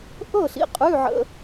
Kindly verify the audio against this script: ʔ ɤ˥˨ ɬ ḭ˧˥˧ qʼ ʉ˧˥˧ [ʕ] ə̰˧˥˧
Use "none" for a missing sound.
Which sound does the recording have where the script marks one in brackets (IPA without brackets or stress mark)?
ʕ